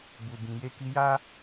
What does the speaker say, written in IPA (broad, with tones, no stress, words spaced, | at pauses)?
bu˨bĩ˨ je˧ki˧ja˦